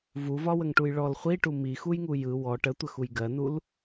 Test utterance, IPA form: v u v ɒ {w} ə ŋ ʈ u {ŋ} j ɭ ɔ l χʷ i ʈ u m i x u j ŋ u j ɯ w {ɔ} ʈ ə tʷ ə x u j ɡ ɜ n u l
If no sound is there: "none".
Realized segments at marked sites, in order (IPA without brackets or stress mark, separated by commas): w, none, ɔ